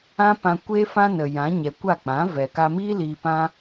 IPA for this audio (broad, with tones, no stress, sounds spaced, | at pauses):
ã˦ p ã˧ kʷ eː˦ f ã˦ n ə˨ j ã˨˦ ɲ ɛ˨ kʷ a˦˨ k͡p ã˨˦ v ɛ˨ k a˧ m iː˦ l iː˧ p ã˦